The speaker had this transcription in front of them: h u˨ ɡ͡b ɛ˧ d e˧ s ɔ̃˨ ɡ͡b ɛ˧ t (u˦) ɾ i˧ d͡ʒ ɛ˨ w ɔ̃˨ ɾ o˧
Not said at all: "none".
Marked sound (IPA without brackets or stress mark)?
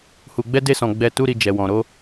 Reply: u˦